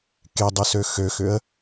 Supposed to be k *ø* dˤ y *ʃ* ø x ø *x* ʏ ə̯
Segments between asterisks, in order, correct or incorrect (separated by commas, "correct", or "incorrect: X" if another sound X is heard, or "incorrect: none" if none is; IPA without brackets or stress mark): incorrect: e, incorrect: s, correct